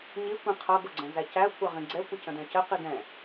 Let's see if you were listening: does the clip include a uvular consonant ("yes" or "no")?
yes